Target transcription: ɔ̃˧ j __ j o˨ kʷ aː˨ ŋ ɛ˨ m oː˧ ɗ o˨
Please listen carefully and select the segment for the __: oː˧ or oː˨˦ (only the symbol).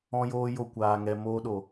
oː˧